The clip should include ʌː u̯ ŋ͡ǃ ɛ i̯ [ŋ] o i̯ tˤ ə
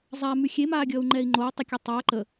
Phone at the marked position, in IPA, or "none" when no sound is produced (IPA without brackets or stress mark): ŋ͡ǃ